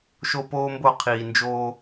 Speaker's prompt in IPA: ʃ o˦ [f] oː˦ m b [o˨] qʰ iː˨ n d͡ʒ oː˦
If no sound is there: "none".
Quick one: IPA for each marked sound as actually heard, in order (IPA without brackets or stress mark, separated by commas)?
p, o˦˨